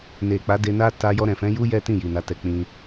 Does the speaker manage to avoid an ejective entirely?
yes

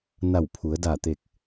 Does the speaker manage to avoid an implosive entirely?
yes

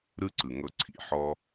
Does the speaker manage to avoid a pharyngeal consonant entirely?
no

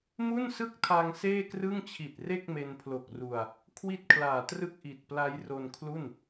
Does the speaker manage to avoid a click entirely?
yes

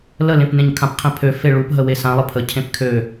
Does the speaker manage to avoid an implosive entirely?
yes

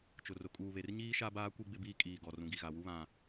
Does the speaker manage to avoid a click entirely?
yes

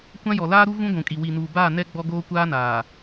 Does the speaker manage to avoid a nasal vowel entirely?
no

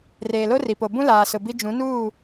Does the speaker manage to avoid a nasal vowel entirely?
no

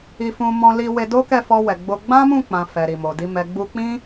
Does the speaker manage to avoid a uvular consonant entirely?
yes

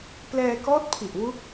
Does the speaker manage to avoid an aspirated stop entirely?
no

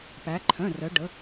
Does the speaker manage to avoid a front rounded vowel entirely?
no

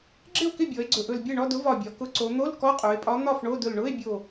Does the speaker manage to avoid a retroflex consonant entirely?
no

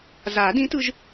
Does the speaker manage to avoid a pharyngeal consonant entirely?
yes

